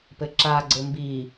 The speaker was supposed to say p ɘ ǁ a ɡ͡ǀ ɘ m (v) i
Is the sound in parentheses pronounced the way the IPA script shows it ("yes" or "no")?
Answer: no